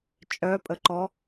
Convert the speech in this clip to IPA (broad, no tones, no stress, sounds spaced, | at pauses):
t͡ʃʼ œ pʼ ə ǃ ɔ